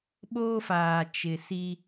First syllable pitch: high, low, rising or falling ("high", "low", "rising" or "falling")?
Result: high